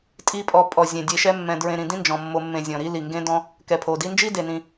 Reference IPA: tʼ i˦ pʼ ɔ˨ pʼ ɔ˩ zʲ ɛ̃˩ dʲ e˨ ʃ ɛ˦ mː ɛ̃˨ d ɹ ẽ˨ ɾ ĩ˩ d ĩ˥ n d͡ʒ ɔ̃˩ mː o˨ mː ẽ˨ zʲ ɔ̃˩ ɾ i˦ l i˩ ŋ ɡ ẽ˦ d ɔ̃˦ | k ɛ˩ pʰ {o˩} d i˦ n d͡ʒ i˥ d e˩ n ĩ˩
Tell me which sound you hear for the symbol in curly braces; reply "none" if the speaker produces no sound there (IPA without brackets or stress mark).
o˩